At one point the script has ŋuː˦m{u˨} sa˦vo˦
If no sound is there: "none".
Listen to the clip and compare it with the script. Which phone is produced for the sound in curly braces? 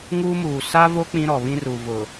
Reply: uː˨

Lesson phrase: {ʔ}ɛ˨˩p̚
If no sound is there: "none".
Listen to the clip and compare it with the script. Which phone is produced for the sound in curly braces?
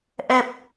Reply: ʔ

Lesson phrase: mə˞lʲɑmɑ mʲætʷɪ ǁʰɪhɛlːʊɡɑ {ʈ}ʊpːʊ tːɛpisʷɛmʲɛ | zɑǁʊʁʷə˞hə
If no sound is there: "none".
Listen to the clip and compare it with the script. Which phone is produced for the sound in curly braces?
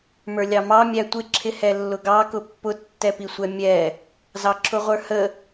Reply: k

